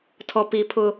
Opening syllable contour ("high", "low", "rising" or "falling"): low